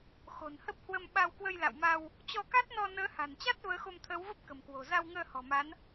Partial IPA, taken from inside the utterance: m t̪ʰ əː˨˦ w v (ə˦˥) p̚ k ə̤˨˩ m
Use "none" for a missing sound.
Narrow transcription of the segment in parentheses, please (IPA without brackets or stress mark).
ə˦˥